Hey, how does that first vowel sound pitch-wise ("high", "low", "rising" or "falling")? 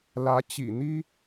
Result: rising